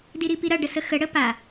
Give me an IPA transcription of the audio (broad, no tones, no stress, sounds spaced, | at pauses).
d i ɾ i p i ɾ ɐ ɖ ə s ə x ə ɽ ə p a